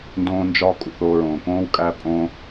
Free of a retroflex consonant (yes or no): yes